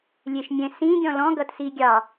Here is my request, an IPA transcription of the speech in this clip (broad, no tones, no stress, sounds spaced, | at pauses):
lʲ e ʃ mʲ ɛ̃ s ĩ ɡʲ ɔ̃ l ɔ̃ ɡ ʌ t s i ɡʲ ɑ